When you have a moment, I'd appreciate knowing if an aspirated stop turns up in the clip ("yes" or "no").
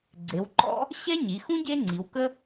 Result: no